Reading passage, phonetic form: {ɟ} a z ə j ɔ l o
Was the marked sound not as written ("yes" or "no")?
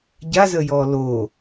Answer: no